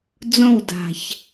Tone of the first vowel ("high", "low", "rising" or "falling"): falling